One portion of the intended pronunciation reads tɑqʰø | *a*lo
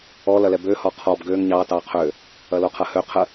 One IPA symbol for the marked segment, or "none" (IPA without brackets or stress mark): ɐ